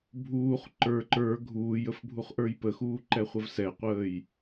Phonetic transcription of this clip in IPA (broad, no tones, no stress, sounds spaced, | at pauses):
bʱ uː χ ǃ ə˞ ǃ ə˞ ɡʱ uː j ə f bʱ u χ ʔ ə˞ j p ə x uː ǃ ɛ χʷ ə v s ɛ qʷ əː j